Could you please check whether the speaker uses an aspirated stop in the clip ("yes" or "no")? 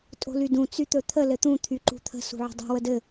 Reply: yes